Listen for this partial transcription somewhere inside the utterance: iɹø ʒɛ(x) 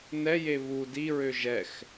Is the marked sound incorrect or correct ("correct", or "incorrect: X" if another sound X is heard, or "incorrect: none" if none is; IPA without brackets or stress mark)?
correct